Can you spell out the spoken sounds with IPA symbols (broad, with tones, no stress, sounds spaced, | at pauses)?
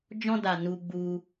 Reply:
d͡ʒ ɔ̃˧ d a˨ n u˧ ɡ͡b u˧